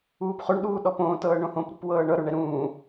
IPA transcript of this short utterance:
uː p χ o ɳ ɗ uː ɗ ɔ p õː t ɤː ɳ õ h õ p ɾ ṳ p w ɤː ɳ ɤ ɾ o ɳ ɛ ɾ ũː

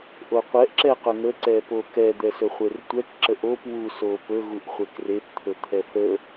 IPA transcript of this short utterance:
ʔ o qʷ ɛ ʔ ǁ ɛ q ɵ ŋ ə ǀ ɛ p o k ɛ d̪ ɛ s ɵ χʷ e r tʷ ɛ k ǁ ə ʔ o p w u s o p ɵ ɣ u ʔ χʷ e k r e p t̪ʰ ɵ t̪ʰ ɛ θ ə

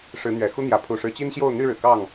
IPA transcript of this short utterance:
ʂ ɻ̩˨˦ n̪ ɥ ɛ˨˩ x u˦ n̪ j ä˨˦ pʰ u˨˩ ʂ ɻ̩˨˦ t͡ɕ i˦ n ɕ j o˥˨ ʊ̯ n̪ y˥˨ ɻ ɻ̩˩ k ɑ˥˨ ŋ

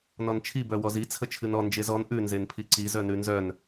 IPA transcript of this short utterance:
n ɔ n t͡ʃʰ i b œ w ɔ z i t͡sʰ ə t͡ʃʰ ɨ n ɔ n d͡ʒ e z ɔ n ʔ ʉ n z e n pʰ i ǀ i z œ n ʉ n z œ n

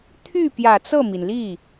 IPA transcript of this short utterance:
t̪ʰ y˥˩ p j ä˨˩ t͡s ɤ˥˩ m i˩ n l i˥˩

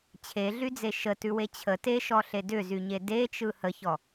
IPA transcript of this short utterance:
t͡ɕʰ e ɮ y d͡z e ʃ ə t ʉ w e t͡ɕʰ ə t e ʃ ɔ ɬ e d ʏ z y ɲ e d e t͡ʃ ɯ h ə ç ɔ

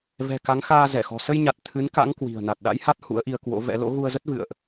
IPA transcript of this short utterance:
v ɛ̤˨˩ k a˨˦ ŋ x aː˧ z ɛ˧˩ x ɔ̤˨˩ s ə˧ j ɲ a˨˩ t̚ t̪ʰ ɨ˨˦ n k a̰˧˥ ŋ k w i̤˨˩ ə̯ n a˨˩ t̚ ɗ a̰˧˥ j h a˦˥ t̚ h ṵ˧˥ ə̯ ʔ i˧ ə̯ k w o̰˧˥ v ɛ̰˧˥ l o̰˧˥ ɣ u˧ ə̯ z ə˦˥ t̚ v ɨ̰˧˨ ə̯ ʔ

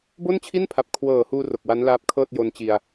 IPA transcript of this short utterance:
b o˥˩ n t͡ɕʰ i˥˩ n pʰ a˨˩ p̚ kʰ w ɤː˨˩ h uː˧ r o˨˩ k̚ w a˦˥ n l aː˦˥ p̚ kʰ ɤː˥˩ t̚ j o˧ n t͡ɕ i˧ a̯

